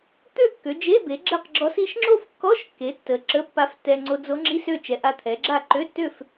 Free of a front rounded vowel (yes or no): no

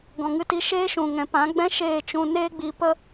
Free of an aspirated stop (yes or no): yes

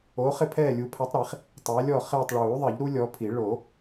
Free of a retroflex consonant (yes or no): no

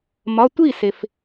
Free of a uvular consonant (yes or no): yes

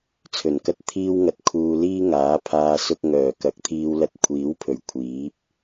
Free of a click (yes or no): yes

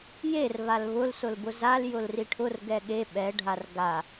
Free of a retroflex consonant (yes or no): no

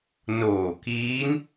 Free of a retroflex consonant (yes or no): yes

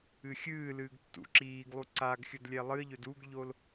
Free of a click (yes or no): no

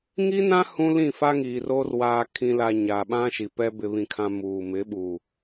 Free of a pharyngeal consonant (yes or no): yes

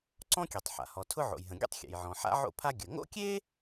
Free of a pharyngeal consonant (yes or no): no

